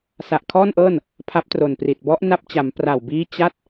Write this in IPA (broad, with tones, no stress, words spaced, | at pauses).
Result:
sa˨˩ʔkʰɔː˥˩nʔɤː˥˩n | pʰa˦˥p̚tro˨˩npri˨˩t̚ bɔ˦˥ʔna˦˥p̚t͡ɕa˩˦m pra˨˩wbiː˦˥ t͡ɕa˦˥t̚